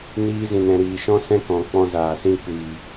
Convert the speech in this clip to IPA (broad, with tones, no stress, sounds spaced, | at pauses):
n iː˧ z ĩ˨ n ɛ̃˨ ɾ iː˨ ʃ ɔ̃˦ s ɛ̃˦ k ɔ̃˨ k͡p ɔ̃˧ z aː˨ s ĩ˦ kʷ iː˨